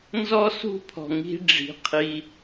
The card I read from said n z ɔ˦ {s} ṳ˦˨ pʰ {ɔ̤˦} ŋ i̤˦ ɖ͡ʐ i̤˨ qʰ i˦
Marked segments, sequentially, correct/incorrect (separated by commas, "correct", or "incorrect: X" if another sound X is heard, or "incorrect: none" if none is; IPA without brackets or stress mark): correct, incorrect: ɔ̤˨